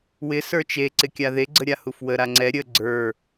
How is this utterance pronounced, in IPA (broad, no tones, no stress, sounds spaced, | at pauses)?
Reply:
w ɪ s ə˞ t͡ʃ e ǀ ɪ kʲ a ð e ɡ͡ǀ ə ɾʲ a h u f w ə ɾ a ŋ͡ǀ ɛ ɾʲ ə ɡ͡ǀ ə˞